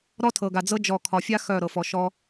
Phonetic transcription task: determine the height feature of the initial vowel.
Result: mid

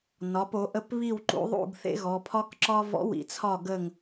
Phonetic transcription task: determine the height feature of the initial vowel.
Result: low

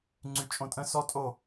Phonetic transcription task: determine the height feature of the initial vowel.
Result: high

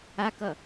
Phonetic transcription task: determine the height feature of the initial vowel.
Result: low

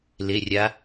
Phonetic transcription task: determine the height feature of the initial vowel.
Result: mid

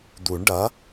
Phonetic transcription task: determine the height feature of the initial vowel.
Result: high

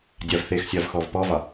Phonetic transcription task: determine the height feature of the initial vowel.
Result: low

